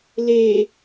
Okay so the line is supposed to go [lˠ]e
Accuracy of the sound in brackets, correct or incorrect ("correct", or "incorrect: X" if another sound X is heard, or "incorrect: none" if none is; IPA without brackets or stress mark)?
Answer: incorrect: l